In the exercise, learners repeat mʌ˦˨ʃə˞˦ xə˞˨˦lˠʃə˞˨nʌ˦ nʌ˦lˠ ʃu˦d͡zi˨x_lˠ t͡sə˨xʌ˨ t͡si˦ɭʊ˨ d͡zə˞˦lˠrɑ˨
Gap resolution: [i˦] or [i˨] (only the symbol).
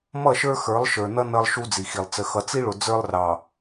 i˨